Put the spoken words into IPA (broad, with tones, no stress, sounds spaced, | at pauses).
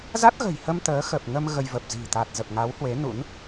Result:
z a˦˥ t̚ ɣ ə̤˨˩ j h ə˧ m t̪ əː˨˦ x ə˨˩ p̚ ŋ ə˧ m ɣ ə˧ j v ə˨˩ p̚ z i̤˨˩ t̪ a˨˩ t̚ z ə˨˩ p̚ ŋ a˨˦ w h w e˨˦ n ṵ˧˥ n